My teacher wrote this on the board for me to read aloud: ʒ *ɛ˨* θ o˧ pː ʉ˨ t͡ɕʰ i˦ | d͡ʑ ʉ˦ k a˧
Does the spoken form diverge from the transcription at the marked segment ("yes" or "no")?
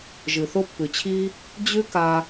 yes